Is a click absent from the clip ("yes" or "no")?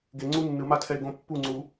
no